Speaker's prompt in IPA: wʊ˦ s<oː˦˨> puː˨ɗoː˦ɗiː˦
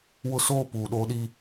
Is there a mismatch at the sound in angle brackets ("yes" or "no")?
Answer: no